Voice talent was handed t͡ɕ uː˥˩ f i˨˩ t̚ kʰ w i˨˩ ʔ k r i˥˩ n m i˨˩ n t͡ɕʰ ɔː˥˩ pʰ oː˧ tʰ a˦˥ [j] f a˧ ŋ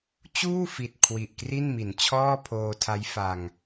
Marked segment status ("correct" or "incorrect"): correct